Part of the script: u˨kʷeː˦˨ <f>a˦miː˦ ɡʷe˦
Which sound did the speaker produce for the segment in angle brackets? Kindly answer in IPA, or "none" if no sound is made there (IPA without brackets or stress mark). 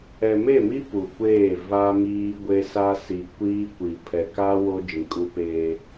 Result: v